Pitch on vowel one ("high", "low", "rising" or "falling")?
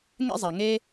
high